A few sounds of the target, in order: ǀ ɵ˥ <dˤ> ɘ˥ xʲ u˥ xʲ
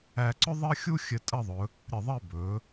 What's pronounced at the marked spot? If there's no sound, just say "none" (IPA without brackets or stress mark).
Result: ðˤ